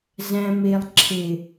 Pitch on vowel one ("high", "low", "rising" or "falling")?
low